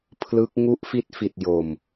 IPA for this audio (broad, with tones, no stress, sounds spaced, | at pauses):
pʰ l ɯ˦˥ k̚ ŋ u˦˥ ʔ f i˦˥ t̚ f i˨˩ t̚ j o˨˩ m